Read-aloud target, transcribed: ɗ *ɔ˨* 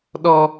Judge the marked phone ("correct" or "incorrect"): incorrect